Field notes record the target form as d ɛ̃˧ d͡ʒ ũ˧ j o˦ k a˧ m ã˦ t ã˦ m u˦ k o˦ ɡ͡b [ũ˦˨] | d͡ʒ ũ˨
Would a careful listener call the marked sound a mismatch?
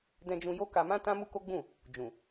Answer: no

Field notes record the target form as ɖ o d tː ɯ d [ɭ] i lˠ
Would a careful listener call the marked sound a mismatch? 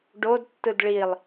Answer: no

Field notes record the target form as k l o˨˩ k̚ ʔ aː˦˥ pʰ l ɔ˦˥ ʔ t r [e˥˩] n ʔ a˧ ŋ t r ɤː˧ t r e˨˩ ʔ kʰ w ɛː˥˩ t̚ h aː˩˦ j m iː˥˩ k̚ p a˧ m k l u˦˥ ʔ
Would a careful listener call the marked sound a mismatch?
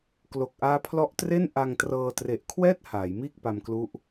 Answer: no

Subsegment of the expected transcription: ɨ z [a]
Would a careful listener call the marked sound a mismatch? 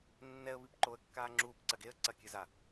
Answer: no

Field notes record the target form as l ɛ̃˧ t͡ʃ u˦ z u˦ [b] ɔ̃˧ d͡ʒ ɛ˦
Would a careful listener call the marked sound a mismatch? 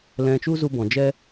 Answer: no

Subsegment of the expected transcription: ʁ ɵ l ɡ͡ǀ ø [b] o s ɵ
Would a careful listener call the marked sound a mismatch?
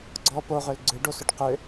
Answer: yes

